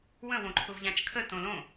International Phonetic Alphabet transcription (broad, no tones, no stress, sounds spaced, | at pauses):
w ə̃ w õ ǃʰ ʊ v ʎ ã t͡ʃ kʰ ə t õ l õ